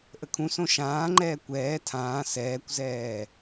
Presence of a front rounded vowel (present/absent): absent